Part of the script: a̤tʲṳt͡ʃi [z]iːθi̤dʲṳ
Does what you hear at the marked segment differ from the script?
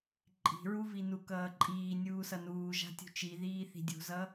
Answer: yes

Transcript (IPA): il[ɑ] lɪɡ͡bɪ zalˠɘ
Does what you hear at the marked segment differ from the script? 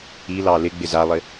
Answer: no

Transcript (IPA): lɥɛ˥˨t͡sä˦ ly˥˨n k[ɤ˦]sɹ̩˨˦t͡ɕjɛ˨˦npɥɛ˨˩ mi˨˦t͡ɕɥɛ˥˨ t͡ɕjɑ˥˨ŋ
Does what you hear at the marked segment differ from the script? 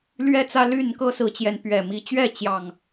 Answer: no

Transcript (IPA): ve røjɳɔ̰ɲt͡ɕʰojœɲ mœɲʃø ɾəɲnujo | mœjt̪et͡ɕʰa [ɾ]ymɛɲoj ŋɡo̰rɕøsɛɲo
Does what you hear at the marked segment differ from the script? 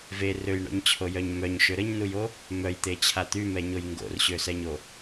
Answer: yes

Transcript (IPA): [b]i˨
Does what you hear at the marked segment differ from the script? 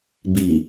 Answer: no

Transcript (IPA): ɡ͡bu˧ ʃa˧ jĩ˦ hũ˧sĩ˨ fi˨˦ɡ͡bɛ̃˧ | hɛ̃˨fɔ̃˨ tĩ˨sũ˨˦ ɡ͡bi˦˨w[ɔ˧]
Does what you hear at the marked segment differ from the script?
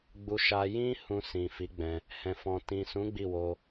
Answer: yes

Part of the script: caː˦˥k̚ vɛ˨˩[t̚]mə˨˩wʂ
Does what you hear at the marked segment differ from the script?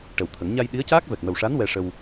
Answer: yes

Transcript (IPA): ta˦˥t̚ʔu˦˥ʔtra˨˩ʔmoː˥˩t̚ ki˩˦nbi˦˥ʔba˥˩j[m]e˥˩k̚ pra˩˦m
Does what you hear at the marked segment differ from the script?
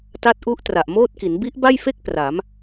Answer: yes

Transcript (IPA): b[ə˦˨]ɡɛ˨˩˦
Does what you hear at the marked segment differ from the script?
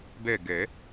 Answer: yes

